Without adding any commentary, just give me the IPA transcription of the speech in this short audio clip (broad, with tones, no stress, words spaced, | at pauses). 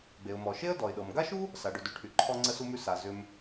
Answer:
ɡ͡be˩ʊ̯mɔ˩ʃe˥ə̯ dɔ˩ɪ̯ɗɤ˩m ɡa˥ʃu˥ | sa˩ɖʏ˩dʉ˩ʈʰy˩ ǃʰɔ˧ŋ͡ǀə˧su˧mʉ˧ sa˩ zʏ˧m